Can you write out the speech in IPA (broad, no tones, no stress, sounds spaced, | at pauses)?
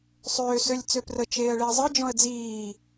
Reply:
sˤ øː s ø lʲ t͡s ø p r ə t͡ʃ eː ə̯ ɭ e ə̯ zˤ ɯ d͡ʒ ɔ̃ ə̯ d͡z iː